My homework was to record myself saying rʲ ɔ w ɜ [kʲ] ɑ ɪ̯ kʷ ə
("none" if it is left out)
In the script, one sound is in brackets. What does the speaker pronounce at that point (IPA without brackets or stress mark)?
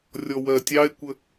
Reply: tʲ